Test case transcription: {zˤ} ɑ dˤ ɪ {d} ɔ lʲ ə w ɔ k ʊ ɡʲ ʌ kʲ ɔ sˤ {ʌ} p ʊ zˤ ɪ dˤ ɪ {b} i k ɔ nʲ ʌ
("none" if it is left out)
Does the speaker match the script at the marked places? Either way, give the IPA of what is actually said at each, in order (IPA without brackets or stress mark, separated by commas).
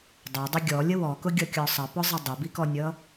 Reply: dˤ, ɡʲ, ʌ, b